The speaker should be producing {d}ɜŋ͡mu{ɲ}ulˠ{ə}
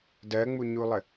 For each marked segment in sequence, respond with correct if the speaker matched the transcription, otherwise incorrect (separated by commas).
correct, correct, correct